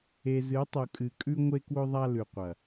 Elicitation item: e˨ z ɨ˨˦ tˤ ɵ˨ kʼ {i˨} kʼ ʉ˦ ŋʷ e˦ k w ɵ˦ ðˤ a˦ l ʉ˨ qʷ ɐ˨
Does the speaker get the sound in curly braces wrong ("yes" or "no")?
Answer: yes